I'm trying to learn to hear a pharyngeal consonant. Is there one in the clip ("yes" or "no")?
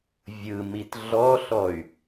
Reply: no